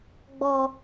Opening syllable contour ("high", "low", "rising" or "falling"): low